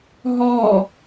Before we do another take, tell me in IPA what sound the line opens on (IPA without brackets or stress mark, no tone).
ɦ